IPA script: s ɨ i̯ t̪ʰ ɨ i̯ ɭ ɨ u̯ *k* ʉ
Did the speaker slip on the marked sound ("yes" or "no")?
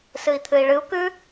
no